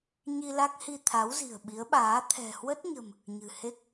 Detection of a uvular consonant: absent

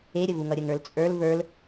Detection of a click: absent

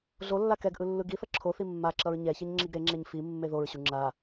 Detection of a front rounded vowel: absent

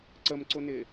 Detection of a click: present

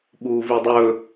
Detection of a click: absent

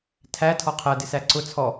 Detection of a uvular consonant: present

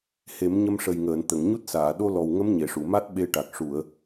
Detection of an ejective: absent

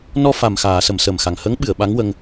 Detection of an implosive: present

